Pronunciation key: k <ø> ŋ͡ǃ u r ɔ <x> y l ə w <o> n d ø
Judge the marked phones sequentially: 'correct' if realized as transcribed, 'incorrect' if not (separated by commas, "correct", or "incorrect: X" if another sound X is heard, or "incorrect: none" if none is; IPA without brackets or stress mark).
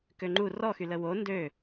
correct, correct, correct